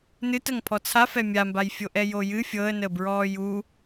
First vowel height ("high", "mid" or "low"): high